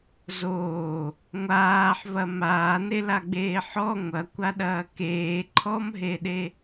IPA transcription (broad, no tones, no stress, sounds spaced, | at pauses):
z oː | ŋʷ aː ħ v ɐ m aː n e l a ɡ͡b eː ħ ɔ ŋʷ ɐ kʷ a ɗ ɐː k eː ǃʰ ɔ m ɦ e ɗ e